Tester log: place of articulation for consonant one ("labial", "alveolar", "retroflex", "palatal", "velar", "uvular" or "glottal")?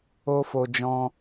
labial